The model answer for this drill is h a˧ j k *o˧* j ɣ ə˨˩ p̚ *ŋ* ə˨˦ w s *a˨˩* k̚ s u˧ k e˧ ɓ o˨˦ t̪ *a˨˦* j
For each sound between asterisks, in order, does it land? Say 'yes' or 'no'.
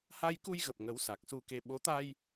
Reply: no, yes, yes, no

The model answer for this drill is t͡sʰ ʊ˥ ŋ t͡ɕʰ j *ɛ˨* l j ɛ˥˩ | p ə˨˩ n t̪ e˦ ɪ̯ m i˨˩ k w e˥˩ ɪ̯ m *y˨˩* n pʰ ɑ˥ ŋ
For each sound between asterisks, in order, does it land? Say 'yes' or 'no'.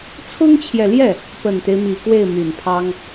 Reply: yes, yes

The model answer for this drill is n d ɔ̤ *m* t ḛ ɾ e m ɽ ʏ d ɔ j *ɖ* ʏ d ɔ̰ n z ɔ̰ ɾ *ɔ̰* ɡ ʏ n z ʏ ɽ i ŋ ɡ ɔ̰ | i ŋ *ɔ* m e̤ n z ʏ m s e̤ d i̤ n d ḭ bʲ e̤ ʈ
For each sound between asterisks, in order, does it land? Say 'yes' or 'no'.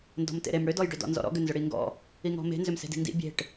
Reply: yes, yes, yes, no

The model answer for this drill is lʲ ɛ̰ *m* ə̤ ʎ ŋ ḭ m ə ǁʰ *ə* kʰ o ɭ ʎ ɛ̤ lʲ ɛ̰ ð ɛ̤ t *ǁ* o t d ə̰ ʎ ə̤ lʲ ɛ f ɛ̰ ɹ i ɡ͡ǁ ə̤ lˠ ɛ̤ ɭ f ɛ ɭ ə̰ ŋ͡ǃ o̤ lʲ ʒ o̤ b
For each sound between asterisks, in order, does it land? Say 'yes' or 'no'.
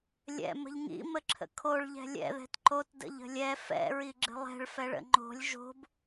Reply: yes, no, no

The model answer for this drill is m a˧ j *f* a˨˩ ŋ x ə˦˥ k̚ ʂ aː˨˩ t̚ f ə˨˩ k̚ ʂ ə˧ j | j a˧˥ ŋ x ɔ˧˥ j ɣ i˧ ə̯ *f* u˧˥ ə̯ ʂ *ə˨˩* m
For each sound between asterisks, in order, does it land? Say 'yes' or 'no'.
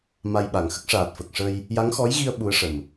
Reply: no, no, yes

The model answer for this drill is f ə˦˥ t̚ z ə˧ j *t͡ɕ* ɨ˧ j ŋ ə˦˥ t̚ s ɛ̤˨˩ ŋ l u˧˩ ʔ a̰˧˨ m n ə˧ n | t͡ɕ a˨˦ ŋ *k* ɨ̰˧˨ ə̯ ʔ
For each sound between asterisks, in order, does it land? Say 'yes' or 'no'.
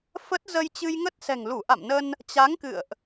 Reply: yes, yes

